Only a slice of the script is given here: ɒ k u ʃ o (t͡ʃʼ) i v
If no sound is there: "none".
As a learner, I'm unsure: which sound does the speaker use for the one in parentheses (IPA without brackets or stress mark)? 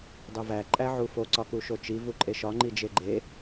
t͡ʃ